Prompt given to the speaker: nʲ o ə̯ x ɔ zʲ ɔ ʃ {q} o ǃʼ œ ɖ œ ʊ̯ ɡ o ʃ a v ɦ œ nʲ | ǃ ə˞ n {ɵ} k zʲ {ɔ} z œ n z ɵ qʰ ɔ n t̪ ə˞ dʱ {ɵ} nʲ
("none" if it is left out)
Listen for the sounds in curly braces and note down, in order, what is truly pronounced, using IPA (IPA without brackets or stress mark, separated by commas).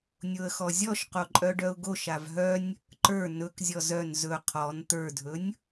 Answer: q, ɵ, ɔ, ɵ